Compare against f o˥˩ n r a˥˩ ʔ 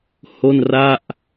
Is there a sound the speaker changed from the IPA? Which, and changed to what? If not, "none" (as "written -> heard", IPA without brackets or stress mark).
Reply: f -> h